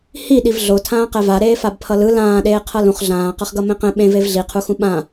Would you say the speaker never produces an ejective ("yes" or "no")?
yes